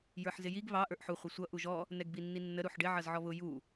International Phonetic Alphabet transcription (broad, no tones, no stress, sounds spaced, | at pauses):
j ə˞ ħ z ɪ j i ɡ β ɑ ʔ ə˞ ʔ ħ u χʷ ɪ sʷ ʌ ʔ u ʒ ɔ | n ɛ ɡ b i nː i nː ə ɾ u ħ ɖ ɪ ʕ ʌ z ʕ ɔ β ʊ j u